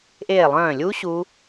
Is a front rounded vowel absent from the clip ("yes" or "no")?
no